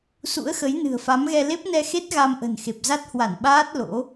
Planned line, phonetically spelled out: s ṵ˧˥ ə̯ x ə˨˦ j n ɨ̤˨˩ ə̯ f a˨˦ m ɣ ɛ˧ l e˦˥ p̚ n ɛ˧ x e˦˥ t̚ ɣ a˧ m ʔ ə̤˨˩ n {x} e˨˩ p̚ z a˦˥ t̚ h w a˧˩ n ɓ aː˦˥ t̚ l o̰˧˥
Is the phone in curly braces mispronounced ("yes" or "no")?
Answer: no